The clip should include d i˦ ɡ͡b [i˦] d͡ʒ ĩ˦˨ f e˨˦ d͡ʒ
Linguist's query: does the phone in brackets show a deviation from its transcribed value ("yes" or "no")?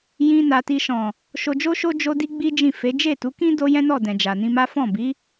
no